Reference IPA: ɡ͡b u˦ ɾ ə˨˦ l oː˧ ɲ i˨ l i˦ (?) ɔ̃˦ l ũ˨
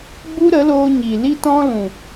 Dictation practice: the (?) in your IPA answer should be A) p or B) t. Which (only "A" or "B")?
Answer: B